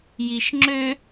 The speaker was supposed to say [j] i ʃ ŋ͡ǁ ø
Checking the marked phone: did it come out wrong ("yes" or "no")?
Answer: no